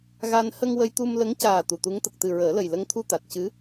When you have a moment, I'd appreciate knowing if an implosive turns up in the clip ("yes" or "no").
no